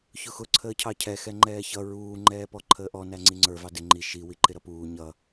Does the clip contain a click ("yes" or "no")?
yes